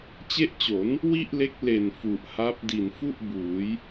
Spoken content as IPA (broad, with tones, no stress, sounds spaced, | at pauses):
t͡ɕ e˦˥ ʔ t͡ɕ o˩˦ n | w i˥˩ ʔ l e˦˥ k̚ l e˨˩ n f u˨˩ ʔ h a˦˥ p̚ d i˨˩ n f u˥˩ ʔ b uː˩˦ j